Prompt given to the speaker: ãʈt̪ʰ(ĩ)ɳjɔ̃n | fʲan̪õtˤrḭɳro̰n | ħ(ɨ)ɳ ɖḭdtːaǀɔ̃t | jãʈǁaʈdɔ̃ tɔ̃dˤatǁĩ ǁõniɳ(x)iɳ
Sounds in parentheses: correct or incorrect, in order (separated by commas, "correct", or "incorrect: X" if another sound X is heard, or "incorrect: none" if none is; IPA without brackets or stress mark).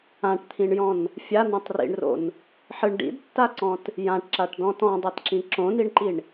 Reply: correct, correct, incorrect: ǃ